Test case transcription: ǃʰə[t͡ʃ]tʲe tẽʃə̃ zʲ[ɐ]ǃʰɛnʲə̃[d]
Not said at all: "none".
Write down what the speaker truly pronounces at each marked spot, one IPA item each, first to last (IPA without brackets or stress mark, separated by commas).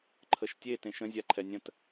ʃ, a, t